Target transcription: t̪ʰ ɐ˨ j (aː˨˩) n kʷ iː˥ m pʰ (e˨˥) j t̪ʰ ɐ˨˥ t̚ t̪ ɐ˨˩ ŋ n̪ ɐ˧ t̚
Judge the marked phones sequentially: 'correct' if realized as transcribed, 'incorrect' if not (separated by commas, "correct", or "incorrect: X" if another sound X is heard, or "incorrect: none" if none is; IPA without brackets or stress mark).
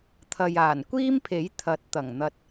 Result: correct, correct